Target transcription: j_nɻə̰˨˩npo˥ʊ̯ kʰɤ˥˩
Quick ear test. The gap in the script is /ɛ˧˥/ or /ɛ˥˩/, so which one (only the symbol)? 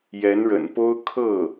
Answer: ɛ˧˥